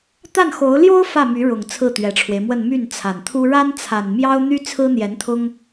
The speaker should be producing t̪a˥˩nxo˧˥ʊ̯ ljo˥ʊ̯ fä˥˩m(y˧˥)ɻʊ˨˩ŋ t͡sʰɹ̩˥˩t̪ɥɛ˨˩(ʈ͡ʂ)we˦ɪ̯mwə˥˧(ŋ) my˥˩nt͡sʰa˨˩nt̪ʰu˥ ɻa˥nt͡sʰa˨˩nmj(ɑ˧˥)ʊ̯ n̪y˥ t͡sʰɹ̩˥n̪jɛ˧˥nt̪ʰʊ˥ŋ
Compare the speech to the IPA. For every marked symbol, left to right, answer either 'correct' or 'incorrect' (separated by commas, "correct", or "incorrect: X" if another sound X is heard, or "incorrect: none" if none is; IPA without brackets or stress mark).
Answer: correct, incorrect: ʈ͡ʂʰ, incorrect: n, incorrect: ɑ˥